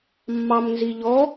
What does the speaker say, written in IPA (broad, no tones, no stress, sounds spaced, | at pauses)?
mː ɑ m n z i ʎ ɔ